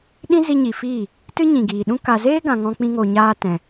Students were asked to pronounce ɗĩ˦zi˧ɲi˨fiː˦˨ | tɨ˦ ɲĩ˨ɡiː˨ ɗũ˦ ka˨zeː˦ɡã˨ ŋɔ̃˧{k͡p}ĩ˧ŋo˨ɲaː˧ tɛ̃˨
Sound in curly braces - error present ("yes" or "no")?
no